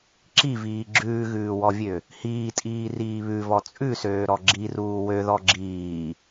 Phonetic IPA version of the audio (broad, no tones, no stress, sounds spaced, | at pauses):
ǁ i v iː ɡ͡ǁ ʉː ɣ ʉː w ɔ vʲ ø | h iː tʼ iː r iː β ʉ v ɔ t͡sʼ ʉ s øː ɾ ɔ ɡ͡ǁ i r uː w ø ð ɔ ɡ͡ǁ iː